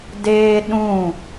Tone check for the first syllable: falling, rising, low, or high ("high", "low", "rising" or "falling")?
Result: high